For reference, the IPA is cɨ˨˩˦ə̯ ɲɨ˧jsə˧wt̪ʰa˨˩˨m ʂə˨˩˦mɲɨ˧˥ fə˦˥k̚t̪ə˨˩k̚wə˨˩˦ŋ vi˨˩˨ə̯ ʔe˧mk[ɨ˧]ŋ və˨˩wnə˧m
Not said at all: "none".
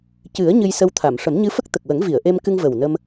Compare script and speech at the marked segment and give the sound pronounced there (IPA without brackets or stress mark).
ɨ˧